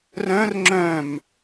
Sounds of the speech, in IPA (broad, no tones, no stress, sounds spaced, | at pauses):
r œ̃ r ŋ͡ǁ œ̃ m